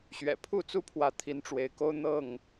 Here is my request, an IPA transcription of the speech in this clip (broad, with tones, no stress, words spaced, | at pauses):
ɕɥɛ̰˨˩pʰu˥˨t͡su˦pʰwä˨˦ t̪ʰi˨˦nʈ͡ʂwe˨˦ɪ̯ko˦ʊ̯ n̪ɤ˥˨ŋ